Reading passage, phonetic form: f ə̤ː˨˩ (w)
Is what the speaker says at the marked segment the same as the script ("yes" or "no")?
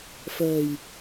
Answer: no